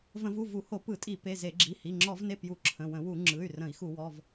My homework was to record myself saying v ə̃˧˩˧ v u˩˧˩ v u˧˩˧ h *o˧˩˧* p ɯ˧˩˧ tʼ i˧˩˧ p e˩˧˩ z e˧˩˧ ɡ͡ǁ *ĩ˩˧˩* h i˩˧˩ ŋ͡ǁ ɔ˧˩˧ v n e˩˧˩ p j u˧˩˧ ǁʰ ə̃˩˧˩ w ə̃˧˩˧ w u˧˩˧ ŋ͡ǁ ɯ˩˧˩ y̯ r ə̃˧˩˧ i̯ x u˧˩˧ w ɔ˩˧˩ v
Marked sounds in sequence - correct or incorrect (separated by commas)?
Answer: correct, incorrect